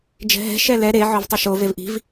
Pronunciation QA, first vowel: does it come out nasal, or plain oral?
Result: oral